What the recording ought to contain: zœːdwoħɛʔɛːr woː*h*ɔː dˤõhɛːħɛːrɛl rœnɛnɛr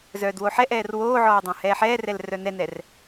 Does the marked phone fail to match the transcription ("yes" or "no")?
yes